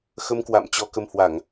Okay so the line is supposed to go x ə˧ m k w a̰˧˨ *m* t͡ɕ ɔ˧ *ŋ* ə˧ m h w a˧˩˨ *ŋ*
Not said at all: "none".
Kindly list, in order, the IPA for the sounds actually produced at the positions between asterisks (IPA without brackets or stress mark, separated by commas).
m, k, ŋ